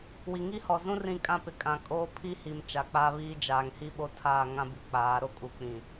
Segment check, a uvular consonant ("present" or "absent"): absent